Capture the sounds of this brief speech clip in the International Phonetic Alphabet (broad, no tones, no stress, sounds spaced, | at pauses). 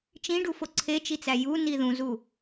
t͡ʃ ĩ ɖ u f o ǀʰ e t͡ʃ i t͡s æ j u n i ð ũ z u